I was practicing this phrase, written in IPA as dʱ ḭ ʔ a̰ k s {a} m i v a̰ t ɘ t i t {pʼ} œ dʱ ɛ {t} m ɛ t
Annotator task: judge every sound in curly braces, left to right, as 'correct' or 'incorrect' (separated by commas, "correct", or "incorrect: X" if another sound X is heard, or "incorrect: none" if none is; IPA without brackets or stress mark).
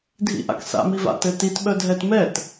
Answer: incorrect: a̰, incorrect: ɓ, correct